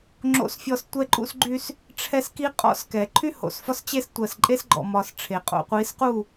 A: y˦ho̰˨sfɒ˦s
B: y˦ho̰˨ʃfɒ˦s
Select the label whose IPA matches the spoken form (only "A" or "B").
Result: A